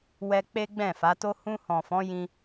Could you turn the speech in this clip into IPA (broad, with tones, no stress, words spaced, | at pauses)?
wɛ˧ k͡pe˦ɡ͡bɛ̃˦˨fa˨˦to˦ hũ˧hɔ̃˨fɔ̃˨˦ jĩ˧